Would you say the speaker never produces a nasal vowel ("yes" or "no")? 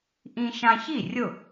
no